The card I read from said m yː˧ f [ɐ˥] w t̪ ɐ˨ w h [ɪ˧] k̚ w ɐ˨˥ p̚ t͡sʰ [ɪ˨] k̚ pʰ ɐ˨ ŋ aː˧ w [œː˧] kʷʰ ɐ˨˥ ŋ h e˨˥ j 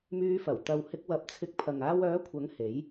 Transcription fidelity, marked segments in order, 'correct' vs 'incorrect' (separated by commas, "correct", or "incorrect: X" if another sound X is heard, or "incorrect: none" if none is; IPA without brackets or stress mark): incorrect: ɐ˨˩, correct, incorrect: ɪ˧, incorrect: œː˨˥